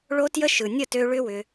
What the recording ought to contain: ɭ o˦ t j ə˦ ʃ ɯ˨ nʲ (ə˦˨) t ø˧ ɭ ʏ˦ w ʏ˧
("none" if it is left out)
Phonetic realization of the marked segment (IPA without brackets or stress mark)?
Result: ə˦˨